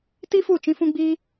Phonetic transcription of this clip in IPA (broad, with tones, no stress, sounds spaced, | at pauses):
t i˦ f u˦˨ t͡ʃ ĩ˦ f ũ˦ ɡ͡b iː˦